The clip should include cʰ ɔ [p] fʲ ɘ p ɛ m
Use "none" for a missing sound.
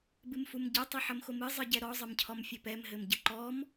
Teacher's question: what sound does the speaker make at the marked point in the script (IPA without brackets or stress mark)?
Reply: m